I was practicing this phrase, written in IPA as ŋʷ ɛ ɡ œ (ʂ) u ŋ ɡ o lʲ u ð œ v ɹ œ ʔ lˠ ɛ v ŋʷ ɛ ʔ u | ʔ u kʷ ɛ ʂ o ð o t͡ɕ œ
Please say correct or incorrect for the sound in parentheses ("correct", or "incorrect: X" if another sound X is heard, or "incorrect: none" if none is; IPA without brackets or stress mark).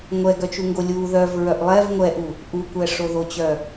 incorrect: t͡ʃ